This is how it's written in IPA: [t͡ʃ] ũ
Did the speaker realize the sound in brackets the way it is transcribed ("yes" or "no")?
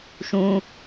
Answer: no